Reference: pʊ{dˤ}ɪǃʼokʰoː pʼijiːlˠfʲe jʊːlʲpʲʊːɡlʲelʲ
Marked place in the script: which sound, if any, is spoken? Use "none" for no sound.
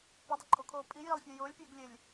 dˤ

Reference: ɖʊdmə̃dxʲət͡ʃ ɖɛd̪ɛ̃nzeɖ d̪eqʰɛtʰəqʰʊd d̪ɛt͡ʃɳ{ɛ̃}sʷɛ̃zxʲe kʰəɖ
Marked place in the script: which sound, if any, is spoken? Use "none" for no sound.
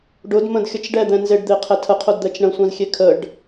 ə̃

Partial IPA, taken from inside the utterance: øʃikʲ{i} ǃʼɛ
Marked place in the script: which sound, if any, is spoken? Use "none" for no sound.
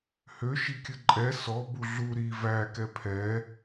ɨ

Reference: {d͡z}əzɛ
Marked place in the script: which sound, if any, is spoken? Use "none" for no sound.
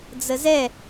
d͡z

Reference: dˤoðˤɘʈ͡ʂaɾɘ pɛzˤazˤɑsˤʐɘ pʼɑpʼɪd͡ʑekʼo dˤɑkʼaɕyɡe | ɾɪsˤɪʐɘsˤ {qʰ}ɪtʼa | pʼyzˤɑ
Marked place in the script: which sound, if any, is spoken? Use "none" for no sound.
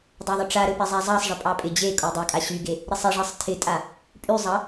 tʰ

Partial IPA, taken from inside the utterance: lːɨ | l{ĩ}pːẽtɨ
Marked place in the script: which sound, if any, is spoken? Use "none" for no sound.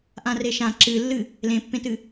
ẽ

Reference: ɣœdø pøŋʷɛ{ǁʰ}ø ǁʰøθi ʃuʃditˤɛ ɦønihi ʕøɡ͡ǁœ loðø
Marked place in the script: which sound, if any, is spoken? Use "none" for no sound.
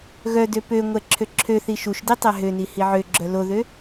ǁʰ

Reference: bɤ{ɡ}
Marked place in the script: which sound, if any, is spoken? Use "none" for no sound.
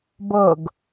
ɡ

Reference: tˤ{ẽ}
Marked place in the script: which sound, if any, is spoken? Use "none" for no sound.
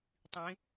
ĩ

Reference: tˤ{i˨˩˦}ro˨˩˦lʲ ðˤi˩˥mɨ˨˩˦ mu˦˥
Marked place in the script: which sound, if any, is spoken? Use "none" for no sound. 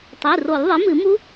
i˩˧˩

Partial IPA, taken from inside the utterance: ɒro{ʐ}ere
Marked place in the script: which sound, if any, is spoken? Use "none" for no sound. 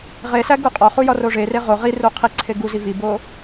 ʐ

